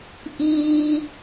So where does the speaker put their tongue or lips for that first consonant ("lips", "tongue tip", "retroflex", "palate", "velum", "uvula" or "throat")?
throat